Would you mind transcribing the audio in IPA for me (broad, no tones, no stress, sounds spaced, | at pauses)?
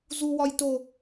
z u w ɒ j t o